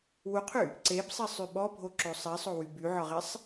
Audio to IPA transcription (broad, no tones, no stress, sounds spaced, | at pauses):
w u qʰ y | ǀ e b sˤ i sˤ y ɓ ɔ bʱ o ǁ o sˤ i sˤ o w y b y ʕ ɒ ʁ e sˤ